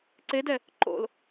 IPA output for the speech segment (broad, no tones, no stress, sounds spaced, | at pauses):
ǀ e d ɛ | ǃ o̰ l